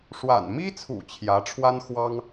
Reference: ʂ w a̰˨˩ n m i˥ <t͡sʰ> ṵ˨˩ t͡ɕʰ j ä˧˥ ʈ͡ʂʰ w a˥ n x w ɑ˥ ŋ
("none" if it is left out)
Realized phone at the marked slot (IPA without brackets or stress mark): t͡sʰ